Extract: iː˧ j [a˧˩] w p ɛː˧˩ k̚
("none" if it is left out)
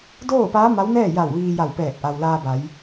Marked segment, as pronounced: a˧˩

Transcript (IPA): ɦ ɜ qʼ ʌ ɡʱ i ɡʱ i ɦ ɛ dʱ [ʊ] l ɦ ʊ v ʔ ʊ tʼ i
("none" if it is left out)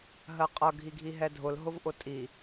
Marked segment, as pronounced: ʊ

